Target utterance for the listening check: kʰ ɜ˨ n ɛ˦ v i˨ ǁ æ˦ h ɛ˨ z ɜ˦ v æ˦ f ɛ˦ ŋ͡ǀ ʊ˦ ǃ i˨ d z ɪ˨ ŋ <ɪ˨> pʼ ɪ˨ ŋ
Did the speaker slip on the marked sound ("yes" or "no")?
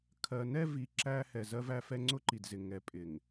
yes